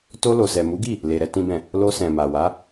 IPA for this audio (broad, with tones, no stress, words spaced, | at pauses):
to˧ lo˨sɛ˨mu˨˦ɡi˦˨ | le˨ ɾɛ˧tĩ˦bɛ̃˦˨ | lo˧sɛ̃˨ ma˨wa˨˦